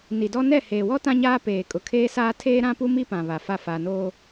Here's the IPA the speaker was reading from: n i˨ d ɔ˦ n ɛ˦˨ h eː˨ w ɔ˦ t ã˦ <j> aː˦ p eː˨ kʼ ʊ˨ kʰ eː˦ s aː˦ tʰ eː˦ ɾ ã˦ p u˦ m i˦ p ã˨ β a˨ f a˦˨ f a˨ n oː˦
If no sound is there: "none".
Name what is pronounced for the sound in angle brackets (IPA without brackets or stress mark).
ɲ